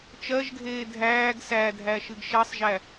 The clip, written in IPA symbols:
t͡ʃ ɜ ʒ ɡʱ eː dʱ æː ɡ s æ dʱ æ ʃ ɨ ɡ ʃ ɛ sˤ ʒ æ

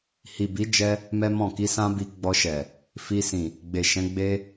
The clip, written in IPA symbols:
h i˨ b i˨˦ d͡ʒ ɛ˧ | m ɛ˦ m ɔ̃˦˨ k i˧ s ã˦ b i˧ ɡ͡b ɔ˧ ʃ ɛ˨ | f i˧ s ĩ˨ | ɡ͡b e˨ ʃ ɛ̃˨˦ ɡ͡b e˦

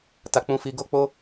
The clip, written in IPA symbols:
t a˨ k͡p ũ˧ f i˧ ɡ o˧ k͡p o˧

